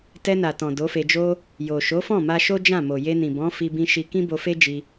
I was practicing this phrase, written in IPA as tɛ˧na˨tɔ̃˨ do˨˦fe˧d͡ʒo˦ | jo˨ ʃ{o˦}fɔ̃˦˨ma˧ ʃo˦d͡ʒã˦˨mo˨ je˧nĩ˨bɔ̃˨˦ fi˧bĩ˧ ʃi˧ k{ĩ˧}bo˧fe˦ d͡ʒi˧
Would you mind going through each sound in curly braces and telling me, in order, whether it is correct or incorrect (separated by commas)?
incorrect, incorrect